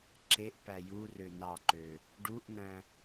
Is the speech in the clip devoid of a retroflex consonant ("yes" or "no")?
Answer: no